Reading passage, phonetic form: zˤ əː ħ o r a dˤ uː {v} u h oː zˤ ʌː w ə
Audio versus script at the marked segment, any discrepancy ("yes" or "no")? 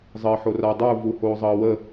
no